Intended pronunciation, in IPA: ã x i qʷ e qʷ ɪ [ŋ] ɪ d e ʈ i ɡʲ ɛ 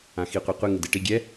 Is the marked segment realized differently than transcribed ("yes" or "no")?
no